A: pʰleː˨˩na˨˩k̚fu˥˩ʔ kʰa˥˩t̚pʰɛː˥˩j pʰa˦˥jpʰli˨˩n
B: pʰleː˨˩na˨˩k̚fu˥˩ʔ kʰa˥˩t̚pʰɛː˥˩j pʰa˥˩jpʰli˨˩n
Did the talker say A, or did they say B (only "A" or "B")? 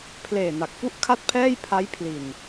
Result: A